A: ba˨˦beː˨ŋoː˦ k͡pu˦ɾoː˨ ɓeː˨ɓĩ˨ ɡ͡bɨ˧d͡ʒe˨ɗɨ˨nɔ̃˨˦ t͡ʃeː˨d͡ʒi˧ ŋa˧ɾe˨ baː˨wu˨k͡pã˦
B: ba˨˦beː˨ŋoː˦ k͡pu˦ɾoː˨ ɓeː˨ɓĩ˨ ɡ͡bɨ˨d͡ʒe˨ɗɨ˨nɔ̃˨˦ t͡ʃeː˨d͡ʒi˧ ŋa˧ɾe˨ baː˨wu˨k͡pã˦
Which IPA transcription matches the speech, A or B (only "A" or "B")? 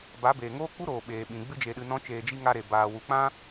A